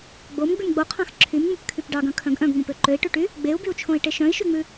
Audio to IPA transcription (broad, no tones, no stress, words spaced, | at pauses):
ɡ͡bom ɡ͡bʉmɡ͡boqʰɑ̃x ǁʰymŋ͡mʉpkʰyp ɖɑɡœ̃ kʰœ̃ɡʔœ̃ɡŋ͡mõpø ǃøi̯ʈʉʈy | ɡ͡beu̯byu̯t͡ʃʰõi̯ ʈeʃœ̃i̯ʃyŋ͡mʉ